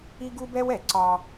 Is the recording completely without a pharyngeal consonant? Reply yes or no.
yes